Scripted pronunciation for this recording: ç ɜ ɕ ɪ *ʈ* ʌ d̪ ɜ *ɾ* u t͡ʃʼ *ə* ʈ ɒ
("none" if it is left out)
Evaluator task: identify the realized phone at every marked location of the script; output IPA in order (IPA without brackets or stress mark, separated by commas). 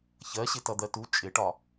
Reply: t, t, ɪ